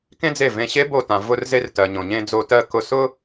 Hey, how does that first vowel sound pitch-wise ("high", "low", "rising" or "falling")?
high